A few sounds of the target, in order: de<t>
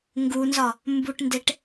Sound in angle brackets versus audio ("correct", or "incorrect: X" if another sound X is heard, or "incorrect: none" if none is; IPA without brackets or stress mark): incorrect: ʈ